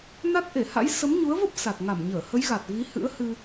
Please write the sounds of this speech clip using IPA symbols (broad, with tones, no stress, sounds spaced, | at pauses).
n a˦˥ t̚ ʔ e˧˩ h a̰˧˥ j s ə˨˦ m ɲ u˨˦ ə̯ v ə˦˥ p̚ s a˨˩ t̚ ŋ a˧˩ m ɲ əː˧˩ h ə˨˦ j ɣ a˨˩ t̚ v i˨˦ h ɨ̰˧˥ ə̯ h ɨ˧